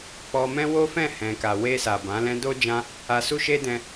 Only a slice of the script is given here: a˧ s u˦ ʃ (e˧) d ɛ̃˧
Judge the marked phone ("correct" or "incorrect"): incorrect